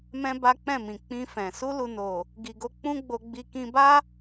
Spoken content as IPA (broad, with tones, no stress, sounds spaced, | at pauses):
m ɛ̃˦ b a˦ k͡p ɛ̃˦˨ m ĩ˨ k͡p ĩ˧ f ɛ̃˨ s u˧ l u˨ n o˨ | ɡ i˨ ɡ o˧ k͡p ũ˦ ɡ͡b o˧ ɡ͡b i˧ k ĩ˧ b a˦